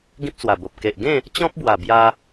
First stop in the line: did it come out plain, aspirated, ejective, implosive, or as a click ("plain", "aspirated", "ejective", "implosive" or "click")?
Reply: plain